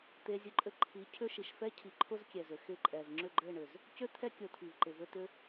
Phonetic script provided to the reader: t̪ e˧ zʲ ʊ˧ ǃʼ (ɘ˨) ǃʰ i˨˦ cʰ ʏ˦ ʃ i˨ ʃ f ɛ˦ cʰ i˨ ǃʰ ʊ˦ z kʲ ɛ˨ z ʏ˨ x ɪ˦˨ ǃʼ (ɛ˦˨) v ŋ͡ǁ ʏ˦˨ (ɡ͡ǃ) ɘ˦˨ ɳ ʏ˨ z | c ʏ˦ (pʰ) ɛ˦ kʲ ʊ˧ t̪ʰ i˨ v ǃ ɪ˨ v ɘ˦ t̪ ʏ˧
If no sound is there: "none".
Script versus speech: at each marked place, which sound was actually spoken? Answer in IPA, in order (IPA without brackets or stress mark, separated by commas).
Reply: ɘ˧, ɛ˨, ɡ͡ǃ, t̪ʰ